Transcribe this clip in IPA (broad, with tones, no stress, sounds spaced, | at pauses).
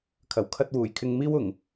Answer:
kʰ ɐ˨˩ w kʰ ɐ˧ t̚ w uː˨˩ j kʰ ɪ˧ ŋ m iː˥ w ʊ˨˩ ŋ